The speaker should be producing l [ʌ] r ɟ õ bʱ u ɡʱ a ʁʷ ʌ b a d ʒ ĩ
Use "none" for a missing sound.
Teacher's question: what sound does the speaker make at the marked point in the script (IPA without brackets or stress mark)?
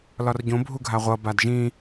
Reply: ɒ